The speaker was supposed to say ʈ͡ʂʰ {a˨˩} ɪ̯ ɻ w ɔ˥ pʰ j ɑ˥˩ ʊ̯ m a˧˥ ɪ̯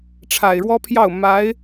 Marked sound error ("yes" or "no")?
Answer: no